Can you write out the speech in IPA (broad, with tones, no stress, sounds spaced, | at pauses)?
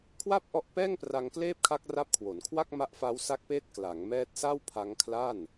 kʰ w a˥˩ p̚ ʔ ɔ˦˥ ʔ p ɛː˥˩ ŋ p r a˧ ŋ k l eː˥˩ p̚ kʰ a˦˥ k̚ r a˦˥ p̚ kʰ w o˩˦ n kʰ w a˥˩ k̚ m a˦˥ ʔ f a˦˥ w s a˦˥ k̚ p eː˦˥ t̚ k l a˩˦ ŋ m ɛː˦˥ t̚ s a˥˩ w pʰ a˦˥ ŋ kʰ l a˥˩ n